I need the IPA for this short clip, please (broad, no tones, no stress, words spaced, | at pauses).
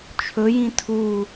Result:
t͡ʃʰɵ jĩtʰu